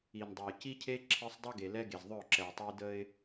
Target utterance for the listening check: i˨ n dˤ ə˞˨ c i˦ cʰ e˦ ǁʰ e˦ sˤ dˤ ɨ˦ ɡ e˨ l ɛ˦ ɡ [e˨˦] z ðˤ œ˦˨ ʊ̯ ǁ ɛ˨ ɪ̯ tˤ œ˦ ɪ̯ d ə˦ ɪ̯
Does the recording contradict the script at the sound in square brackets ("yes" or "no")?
yes